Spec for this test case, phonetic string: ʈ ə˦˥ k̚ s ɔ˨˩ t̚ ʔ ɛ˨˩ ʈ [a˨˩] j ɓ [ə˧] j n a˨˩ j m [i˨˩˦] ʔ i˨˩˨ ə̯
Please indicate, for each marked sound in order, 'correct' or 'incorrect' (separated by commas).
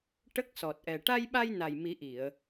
incorrect, incorrect, correct